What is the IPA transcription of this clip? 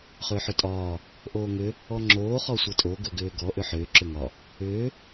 χ ʏː ħ ʏ tʼ ɒː | ʔ oː ŋ ʏ | ɔ ŋ͡ǁ oː χ ɔ sʷ ɤ tʼ o ɡ ɵ ɡ ʏː ɡ ɔ ʔ ʏ ħ ʏː ǁ ʏ ŋ ɒ | ʏː

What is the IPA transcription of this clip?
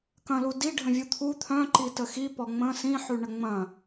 k ɐ̃ l u d i ɖʱ ə̃ vʲ u t̪ʰ u t̪ʰ œ̃ ǃ i t ə x i p ɔ ŋ͡m ə̃ s ĩ ħ y ɳ ə ŋ͡m ɐ̃

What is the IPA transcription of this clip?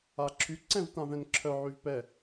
a ǁʰ y ǀ ɛ̃ v t ã v ɛ̃ n ǁʰ œ ʕ y v p ɛ

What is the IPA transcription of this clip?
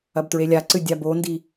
ɐ b t ɹ e lʲ a ǀ ɨ dʲ a b o n d i

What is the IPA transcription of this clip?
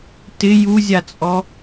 t ɪ j u zʲ a t͡sʼ ɔ

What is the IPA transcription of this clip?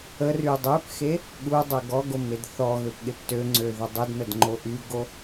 ə r y dˤ ø p x e | ɠ u dˤ ø ɡ ɔ ɡ o m e d θ ɔ ɣ ø p ɠ e p t ø ŋ͡ǀ ø ð ə dˤ u d n ə d ŋ͡ǃ o ʔ y ɡ o

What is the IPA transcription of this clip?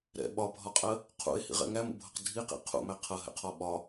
ɾ ɛ̰ ɓ ɒ bʱ ɒ qʼ ɜ | qʰ ṵ e̯ h ḭ ʁ ɛ̰ ŋ æ m ṵ bʱ ʌ q dʱ i q ḭ qʰ ṵ m æ qʰ ʌ ɦ ɛ̰ qʰ ɔ ɓ ɒ

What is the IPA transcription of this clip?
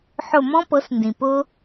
ħ ʊ˥˩ m ɔ̃˥ p ɤ˩˥ s n d ĩ˩ p ʊ˥

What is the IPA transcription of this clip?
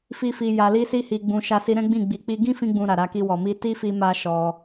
f i˧ f i˨ j a˨ l i˧ s i˧ h i˨ ɡ͡b ũ˨ ʃ a˧ s i˧ ɾ ɛ̃˦ ɡ͡b ĩ˦˨ ɡ͡b i˧ k͡p i˦ ɡ ĩ˦ f ĩ˧ ɡ͡b ũ˨ ɾ a˨ ɾ a˧ k i˧ w ɔ˨ m i˧ t i˦ f i˧ m a˦ ʃ ɔ˧

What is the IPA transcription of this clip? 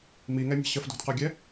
m i ŋ ɛ mʲ ɛ̤ ɕ ə f d o̤ d q œ ɡʲ ɛ

